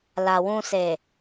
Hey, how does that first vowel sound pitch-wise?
low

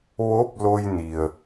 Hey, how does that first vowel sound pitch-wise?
rising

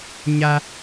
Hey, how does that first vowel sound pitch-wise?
high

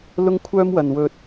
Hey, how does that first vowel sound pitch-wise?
high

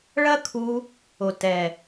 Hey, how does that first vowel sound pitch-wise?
high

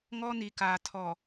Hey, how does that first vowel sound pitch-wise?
high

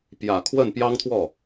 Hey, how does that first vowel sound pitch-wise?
low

